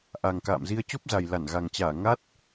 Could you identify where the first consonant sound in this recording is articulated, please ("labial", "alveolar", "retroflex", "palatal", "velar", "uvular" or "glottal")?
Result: glottal